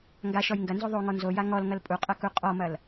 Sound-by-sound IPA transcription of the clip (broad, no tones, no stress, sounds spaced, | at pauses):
ŋ ɡ a ʃ ɔ j ŋ ɡ ɐ n z o ðˤ o ŋ ɔ n z o j a ŋ ɔ l ŋ ɐ l pʼ u qʼ ɐ k u qʼ ɔ m ɐ l